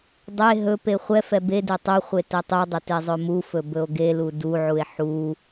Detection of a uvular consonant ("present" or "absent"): present